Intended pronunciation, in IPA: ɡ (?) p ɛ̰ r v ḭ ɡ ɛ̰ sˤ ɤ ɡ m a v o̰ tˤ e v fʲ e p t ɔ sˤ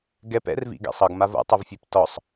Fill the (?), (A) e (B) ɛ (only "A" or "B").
B